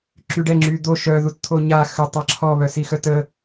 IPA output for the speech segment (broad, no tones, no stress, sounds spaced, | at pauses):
ǁ y ɖ ɛ ŋ͡ǁ y d̪ o ʃ œ ð u t t̪ʰ o ɲ a x ə tˤ a ǁʰ ɔ β œ s i x œ t ə